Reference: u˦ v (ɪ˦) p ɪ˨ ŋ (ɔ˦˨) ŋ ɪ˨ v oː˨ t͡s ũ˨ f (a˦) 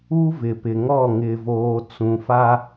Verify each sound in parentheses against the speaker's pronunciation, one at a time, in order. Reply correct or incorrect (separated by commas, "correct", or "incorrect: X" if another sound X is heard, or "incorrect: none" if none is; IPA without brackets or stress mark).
incorrect: ɪ˨, correct, correct